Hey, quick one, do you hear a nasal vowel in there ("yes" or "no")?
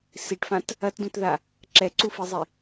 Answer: yes